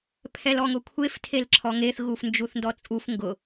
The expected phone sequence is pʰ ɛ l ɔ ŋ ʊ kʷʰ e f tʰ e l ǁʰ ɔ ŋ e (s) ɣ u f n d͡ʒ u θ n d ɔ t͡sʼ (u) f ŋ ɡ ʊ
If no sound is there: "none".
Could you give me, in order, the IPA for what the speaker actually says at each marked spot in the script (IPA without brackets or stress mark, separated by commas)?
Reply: θ, u